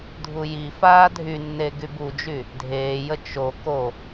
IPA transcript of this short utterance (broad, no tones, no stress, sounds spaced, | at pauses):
dʱ u j i f aː dʱ y nː e ɡ y b u d͡ʒ y | dʱ eː j ə t͡ʃ o k o